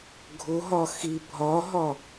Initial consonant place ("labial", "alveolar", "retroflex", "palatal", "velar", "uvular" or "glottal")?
velar